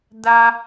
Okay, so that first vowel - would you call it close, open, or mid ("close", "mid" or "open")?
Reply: open